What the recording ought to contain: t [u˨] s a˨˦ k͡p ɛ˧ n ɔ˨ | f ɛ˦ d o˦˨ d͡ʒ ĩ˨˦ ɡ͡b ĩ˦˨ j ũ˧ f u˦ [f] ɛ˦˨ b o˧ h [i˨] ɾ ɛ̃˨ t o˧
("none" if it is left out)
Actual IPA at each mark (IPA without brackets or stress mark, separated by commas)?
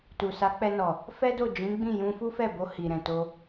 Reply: u˨, f, i˨